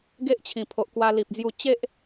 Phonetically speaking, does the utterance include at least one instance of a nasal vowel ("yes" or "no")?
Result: yes